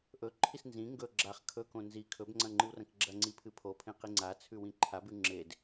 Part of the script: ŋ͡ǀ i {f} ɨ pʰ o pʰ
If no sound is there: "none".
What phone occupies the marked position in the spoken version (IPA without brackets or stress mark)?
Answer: pʰ